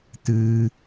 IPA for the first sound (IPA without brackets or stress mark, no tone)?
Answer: t